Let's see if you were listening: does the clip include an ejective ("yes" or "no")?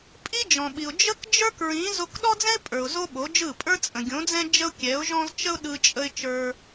yes